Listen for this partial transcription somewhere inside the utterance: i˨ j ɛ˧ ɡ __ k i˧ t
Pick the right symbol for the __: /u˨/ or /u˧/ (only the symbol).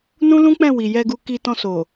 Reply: u˧